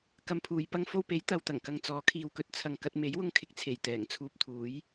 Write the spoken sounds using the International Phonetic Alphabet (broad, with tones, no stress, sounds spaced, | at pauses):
k ɐ˧ m pʰ uː˨˧ j p ɐ˥ ŋ f o˧ w p e˨˥ j t̪ ɐ˨ w t̪ ɐ˨˩ ŋ k ɐ˨ ŋ t͡s ɔː˨˥ kʰ iː˨ w k ɵ˧ t̚ t͡sʰ ɐ˨ ŋ k ɐ˧ t̚ m e˨˥ j w ʊ˧ ŋ kʰ ɪ˨ k̚ t͡sʰ e˨˩ j t̪ ɛː˨˩ ŋ t͡sʰ uː˧ p̚ t̪ʰ uː˨˥ j